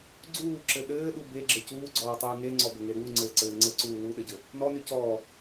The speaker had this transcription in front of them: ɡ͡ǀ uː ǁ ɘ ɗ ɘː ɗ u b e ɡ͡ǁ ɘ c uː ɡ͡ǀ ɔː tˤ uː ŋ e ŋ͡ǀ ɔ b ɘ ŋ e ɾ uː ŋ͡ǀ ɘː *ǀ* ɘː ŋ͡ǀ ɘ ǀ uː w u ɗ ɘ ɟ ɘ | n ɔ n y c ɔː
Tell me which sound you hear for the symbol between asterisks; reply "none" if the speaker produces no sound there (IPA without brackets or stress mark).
ǀ